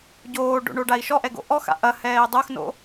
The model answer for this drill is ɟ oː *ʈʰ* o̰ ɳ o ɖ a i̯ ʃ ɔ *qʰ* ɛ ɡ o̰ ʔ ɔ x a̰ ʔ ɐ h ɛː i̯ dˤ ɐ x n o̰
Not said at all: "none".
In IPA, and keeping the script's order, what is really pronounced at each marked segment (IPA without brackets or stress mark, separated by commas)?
ɖ, ʔ